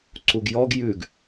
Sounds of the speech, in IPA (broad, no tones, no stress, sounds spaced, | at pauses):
ǀ u ɡ j ɔ ɡ j ʉ ɡ